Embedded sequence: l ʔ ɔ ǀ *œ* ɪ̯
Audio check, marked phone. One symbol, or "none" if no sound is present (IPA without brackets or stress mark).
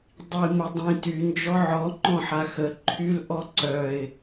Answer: œ